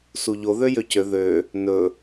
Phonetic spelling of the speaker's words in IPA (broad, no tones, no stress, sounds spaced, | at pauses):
s u ʎ o ð ø j ø c ø ð ø | n ɵ